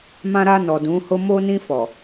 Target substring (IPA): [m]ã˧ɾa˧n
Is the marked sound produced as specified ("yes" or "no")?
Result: yes